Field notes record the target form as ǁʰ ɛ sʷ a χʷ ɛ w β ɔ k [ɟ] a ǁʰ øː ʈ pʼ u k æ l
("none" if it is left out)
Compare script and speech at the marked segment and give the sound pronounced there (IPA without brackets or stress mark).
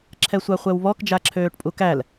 d͡ʒ